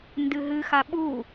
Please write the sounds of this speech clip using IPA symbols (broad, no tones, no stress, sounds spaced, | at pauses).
n d ɨ ɦ ɨ x a ɓ u